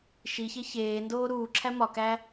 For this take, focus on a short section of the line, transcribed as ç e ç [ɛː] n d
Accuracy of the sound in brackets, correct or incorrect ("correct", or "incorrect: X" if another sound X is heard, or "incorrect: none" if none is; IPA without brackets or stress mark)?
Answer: incorrect: eː